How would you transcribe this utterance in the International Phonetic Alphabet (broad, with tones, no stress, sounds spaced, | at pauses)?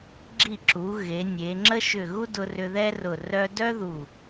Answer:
ɡ͡ǁ i˧˩ ǁ u˩˧ ɣ e˩˧ nʲ e˩˧ ŋ͡ǁ ə˥ ʃ ʏ˧˩ ɣ u˥ d ʊ˧ r ʏ˧ ð ɛ˥ r ʊ˧˩ r œ˧ d œ˥ ð u˧˩